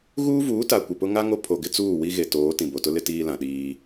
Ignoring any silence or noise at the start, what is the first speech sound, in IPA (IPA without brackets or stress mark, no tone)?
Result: ɣ